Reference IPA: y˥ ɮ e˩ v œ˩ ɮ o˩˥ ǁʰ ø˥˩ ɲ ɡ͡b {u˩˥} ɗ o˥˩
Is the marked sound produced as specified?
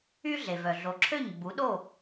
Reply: yes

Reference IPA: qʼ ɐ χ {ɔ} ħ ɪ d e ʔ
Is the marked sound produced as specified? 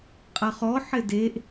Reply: yes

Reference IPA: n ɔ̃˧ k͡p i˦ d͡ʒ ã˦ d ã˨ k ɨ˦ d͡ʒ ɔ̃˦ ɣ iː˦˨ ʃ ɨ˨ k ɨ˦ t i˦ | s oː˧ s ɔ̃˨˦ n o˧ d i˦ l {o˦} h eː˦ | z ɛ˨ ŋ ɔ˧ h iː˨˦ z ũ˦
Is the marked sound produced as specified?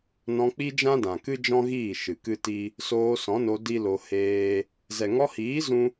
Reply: no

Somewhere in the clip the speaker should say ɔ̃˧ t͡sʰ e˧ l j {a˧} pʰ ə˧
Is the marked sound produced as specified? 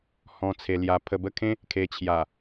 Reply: yes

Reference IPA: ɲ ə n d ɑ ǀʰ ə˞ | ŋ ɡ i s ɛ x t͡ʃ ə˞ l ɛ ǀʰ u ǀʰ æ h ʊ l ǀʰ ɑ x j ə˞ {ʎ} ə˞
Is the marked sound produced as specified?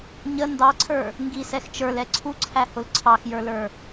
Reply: no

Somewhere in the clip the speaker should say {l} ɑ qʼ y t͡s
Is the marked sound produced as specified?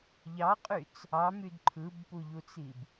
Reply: no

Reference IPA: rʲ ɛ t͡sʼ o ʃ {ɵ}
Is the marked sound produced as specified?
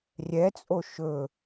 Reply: yes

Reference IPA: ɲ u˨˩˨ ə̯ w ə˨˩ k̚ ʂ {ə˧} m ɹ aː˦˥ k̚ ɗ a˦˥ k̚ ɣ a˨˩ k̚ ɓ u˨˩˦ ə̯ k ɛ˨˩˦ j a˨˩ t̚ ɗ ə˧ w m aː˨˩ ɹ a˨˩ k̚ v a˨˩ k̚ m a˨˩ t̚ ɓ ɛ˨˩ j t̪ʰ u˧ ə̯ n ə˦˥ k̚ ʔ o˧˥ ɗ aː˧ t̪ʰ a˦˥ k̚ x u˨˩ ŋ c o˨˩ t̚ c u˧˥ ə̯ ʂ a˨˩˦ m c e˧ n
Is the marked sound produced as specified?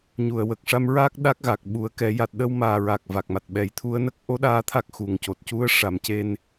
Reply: no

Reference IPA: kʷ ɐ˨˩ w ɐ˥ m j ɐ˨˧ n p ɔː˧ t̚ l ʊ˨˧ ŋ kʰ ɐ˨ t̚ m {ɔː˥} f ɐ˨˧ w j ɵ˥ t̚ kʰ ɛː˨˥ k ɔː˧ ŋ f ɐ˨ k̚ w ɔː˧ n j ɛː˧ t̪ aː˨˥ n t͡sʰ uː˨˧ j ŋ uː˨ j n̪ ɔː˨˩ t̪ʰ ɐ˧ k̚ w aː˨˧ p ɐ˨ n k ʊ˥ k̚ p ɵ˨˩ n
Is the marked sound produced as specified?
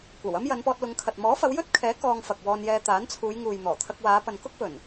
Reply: no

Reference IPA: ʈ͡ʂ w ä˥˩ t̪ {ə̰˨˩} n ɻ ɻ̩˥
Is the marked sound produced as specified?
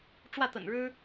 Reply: yes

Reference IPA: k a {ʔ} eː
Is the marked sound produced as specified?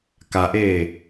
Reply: yes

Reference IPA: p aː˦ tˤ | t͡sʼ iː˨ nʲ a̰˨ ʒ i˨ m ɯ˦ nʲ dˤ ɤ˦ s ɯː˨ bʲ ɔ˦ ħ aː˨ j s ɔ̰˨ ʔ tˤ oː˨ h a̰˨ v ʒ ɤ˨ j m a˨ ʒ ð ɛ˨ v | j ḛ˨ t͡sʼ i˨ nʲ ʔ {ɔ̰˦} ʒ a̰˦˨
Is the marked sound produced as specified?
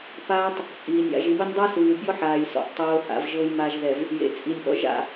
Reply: yes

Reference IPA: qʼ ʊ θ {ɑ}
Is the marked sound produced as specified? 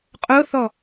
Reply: no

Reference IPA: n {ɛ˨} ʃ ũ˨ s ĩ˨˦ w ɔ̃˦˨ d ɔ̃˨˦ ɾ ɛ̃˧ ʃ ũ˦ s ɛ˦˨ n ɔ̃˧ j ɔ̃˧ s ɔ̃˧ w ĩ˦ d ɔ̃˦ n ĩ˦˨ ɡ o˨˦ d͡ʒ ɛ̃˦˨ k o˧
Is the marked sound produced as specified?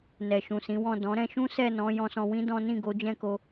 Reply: yes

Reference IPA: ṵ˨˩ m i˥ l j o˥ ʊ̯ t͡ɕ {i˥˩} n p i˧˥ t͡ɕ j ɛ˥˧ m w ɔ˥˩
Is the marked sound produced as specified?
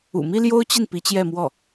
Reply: yes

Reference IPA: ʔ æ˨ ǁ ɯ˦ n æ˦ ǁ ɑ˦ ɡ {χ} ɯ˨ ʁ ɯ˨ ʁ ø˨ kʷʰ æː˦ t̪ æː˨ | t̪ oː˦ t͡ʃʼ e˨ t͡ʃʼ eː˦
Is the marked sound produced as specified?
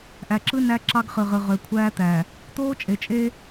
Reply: yes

